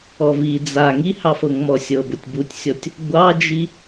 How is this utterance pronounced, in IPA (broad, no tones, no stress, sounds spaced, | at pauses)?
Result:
ɔ v i d͡z a ŋ i h ɑ f ɤ ŋ m ɔ sʲ ɤ b ʊ tʲ b u tʲ sʲ ɔ tʲ | ɡʷ ɑ d͡ʒ i